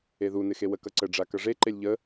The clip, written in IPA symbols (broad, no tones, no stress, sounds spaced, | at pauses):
e ð u n ɪ x e w ə k ʌ ǀ ə ɖ͡ʐ a k ʌ ʐ e ǃ e lʲ ʎ ə